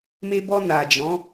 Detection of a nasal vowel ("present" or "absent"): present